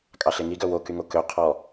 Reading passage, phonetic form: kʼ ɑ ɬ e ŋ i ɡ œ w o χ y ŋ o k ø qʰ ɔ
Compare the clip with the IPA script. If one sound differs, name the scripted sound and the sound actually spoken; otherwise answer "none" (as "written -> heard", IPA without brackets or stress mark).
χ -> k